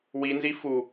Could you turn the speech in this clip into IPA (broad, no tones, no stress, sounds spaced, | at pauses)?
w i n z i f u